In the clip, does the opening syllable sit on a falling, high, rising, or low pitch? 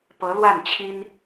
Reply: rising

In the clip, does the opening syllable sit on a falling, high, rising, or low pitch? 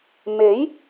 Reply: rising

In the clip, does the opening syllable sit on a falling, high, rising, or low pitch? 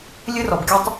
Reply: high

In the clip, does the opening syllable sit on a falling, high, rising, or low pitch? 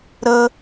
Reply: high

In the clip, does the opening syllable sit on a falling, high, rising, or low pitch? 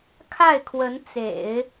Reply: falling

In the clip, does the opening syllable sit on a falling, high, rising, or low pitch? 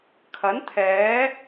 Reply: rising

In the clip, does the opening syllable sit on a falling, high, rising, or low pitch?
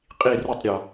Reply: falling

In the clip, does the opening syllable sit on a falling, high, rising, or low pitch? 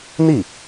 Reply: falling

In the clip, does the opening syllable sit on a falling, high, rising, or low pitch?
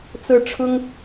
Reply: rising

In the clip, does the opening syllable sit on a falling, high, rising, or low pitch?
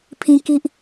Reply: high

